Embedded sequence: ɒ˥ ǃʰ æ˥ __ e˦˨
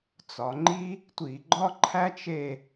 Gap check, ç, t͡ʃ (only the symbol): t͡ʃ